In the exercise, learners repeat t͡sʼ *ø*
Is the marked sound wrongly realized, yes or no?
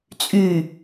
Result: yes